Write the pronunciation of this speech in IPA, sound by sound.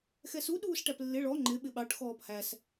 x ɛ s u ɗ uː s ʈ æ p lː ɪ ɭ ɔ ŋ͡ǃ ɪ ɓ ɪ ɓ ɑ ʈ x ɔː p h æ s

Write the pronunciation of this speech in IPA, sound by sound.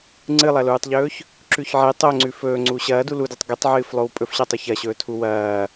ŋ͡ǀ ɨ lˠ ɐ l uː tˤ ʎ ɵː ç | ǁ ʉ ç ʕ e tˤ o ŋ͡ǀ ʉ f ɵː ŋ͡ǀ uː ɕ ɐː d u l u d u tˤ ɡ ɨ tˤ ʕ ɨː f lˠ o w pʼ ɵ f ɕ ɐ tˤ ɵ ç ɐ ɕ ɵː tʰ u w ɐː

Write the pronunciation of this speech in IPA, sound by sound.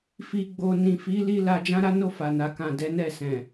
f i˧ ɡ͡b o˧ n ĩ˨ f i˨˦ l i˧ l a˧ d͡ʒ ã˦ ɾ a˦ n o˦˨ f a˨ n a˨ k ã˨ d ɛ˨˦ n ɛ˦˨ s ɛ̃˨

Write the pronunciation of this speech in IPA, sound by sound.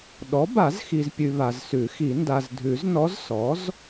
ɗ ɔ˩˥ b a˨˩˦ z x i˨ z pʲ ʉ˨ β a˨ z s ʉ˨˩˦ x i˨˩˦ n d a˨ z dʱ ʉ˨˩˦ z n ɔ˧˥ z s ɔ˩˥ z

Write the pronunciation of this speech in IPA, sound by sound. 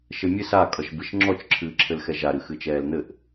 ʃ ɘ mʲ ɨ s a kʼ ʌ ʃ b ɨ ʃ ŋ͡ǁ ɔ t͡ʃ ǁʰ ɨː ǁʰ ɘ l x ɛ ʒ a ɾ ɨ x ɨ t͡ʃ ɛː l n̪ ɘ ʔ

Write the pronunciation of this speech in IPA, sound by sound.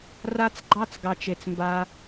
r a˦ t͡s ɡ͡ǃ ɑ˦ t͡s ɡ ɑ˨ t͡ʃ e˨ t͡s m b a˧

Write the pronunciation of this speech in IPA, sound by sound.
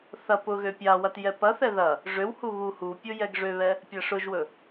θ ɐ p ʊ ɣ ø pʲ a w ɐ t j ɛ p ɐ θ ɛ ð ɐ | ʐ ø w h u β u h u pʲ ʊ j ɛ ɡ ʐ ø β ɛ | pʲ ɐ ʂ ʊ ʒ w ɵ

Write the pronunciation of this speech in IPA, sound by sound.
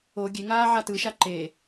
o ɡʲ e ŋ aː ʕ a t ɯ ʃ a ǃ e

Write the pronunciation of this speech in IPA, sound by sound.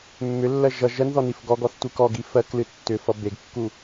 mː ʏ lː ɜ ʒ ʌ ʒ ɜ n ð ɔ n i f ɡ ɔ ɡ ɔ θ tʷ ɨ k ɔ ɡ i f ɜ k l ɨ tː ʏ f ʌ b e ɡ kː u

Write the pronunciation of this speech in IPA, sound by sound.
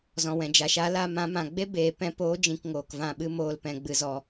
z ɔ̃˨ w ɛ̃˨ d͡ʒ a˨ ʃ a˨˦ l a˧ m ã˨˦ m ã˨ ɡ͡b e˦ b eː˨ p ɛ̃˧ p oː˨˦ d͡ʒ ĩ˨ k ŋ oː˨ k v ã˦˨ ɓ ɨ˦ m oː˧ l p ɛ̃˨ ɡ͡b ɨ˨ z ɔ˨

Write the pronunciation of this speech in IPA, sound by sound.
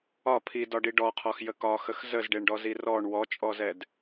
ɒ pʰ i d ɒ ɖ i ɖ ɔ qʰ ɔ x j ə k ɒ x ə x z ə z ɖ e ɳ ɖ ɔ z i r ɔ ɳ w ɔ t͡ʃʼ ɔ z ɛ d

